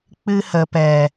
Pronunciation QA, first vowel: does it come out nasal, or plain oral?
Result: oral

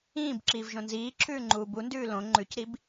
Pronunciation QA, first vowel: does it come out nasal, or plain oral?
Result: nasal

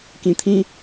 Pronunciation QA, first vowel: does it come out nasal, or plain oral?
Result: nasal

